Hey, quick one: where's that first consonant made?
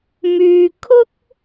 lips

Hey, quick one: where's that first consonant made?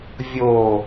lips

